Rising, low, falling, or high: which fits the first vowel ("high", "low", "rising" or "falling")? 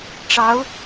rising